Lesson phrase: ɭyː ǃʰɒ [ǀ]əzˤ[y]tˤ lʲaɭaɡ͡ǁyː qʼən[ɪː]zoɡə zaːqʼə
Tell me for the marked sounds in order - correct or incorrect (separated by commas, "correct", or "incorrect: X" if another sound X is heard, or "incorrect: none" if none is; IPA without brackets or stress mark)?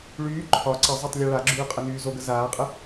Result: correct, correct, incorrect: yː